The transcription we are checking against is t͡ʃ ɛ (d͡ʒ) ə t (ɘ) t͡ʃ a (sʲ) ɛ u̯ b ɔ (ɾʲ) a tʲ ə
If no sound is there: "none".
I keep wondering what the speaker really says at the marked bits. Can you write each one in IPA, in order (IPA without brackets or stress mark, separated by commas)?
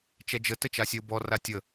d͡ʒ, ɘ, sʲ, r